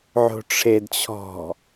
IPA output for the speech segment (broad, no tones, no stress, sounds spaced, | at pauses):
ʕ o̤ ʈ͡ʂʰ e d t͡ɕʰ ɔ̤